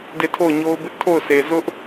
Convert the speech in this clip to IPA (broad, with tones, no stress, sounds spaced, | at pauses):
d e˦˨ tʰ o˦˨ ʊ̯ ɲ o˦ ʊ̯ b ɪ˦ ʔ tʰ o˦˨ ʊ̯ sʰ e˨ z ʊ˦ ʔ